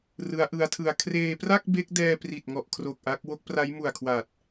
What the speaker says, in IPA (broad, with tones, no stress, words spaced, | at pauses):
rɯ˦˥a̯ʔɯ˦˥a̯tʰɯ˧a̯ kʰreː˧pra˥˩k̚ be˦˥k̚dɛː˧ pri˨˩t̚ŋɔ˨˩ʔkʰro˨˩k̚ ʔa˦˥k̚ wo˦˥k̚pra˦˥j mu˨˩a̯kʰwa˨˩t̚